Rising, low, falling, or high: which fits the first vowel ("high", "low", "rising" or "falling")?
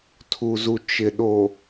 low